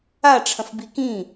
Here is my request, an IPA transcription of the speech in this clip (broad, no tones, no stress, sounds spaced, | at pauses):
a ʈ͡ʂʰ ɐ̃ f b i k ĩ